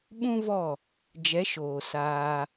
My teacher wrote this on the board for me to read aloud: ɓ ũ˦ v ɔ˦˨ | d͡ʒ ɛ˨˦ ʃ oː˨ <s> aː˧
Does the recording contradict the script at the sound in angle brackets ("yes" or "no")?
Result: no